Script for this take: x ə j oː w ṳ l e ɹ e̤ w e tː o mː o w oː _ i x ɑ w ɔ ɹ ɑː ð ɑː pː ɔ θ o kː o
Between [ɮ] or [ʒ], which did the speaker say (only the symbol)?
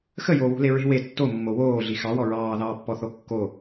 ɮ